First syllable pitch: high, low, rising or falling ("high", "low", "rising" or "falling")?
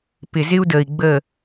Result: low